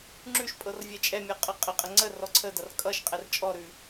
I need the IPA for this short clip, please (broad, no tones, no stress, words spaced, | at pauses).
ŋ͡ǁʉʃ pʼɤrvʲɛt͡ʃʼɛmʲɔ qʼɤqʼəqʼə ŋ͡ǀə rɔǀʰədʌr kʼʌʃ qʼɛrt͡ʃʼɔɾʉ